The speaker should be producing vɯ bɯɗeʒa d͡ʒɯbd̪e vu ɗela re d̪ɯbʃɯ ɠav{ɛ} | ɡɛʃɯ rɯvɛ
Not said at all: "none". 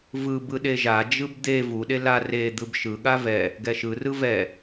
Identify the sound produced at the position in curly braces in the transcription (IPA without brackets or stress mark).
ɛ